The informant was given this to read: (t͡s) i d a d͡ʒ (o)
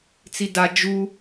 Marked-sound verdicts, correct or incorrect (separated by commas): correct, incorrect